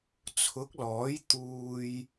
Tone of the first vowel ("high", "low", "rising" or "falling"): rising